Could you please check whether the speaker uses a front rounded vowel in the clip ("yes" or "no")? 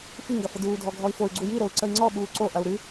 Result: yes